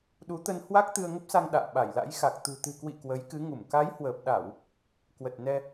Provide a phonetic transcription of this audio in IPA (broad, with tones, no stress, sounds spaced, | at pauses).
ɗ u˨˦ t̪ ə˧ n h w a˦˥ k̚ t̪ ɨ˧ ə̯ ŋ ə˦˥ p̚ s a˧ ŋ ɗ a̰ː˧˨ ɓ a˧˩ j l a̰˧˥ j x a˨˩ k̚ t̪ ṳ˨˩ t̪ ɨ̤˨˩ k w ḭ˧˨ k w ə˨˦ j k ɨ˨˦ ŋ u˧˩ m k a˨˦ j h w əː˨˩ p̚ ɗ a˧˩˨ w | k w ə˨˩ t̚ n ɛ˧